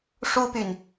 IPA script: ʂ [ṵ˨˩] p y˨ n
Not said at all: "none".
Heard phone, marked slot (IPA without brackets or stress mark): u˥